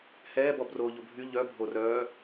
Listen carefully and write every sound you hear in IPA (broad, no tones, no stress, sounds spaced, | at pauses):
h ɛː b ɔ b r oː ʎ o bʱ y ʎ œ bʱ o r œː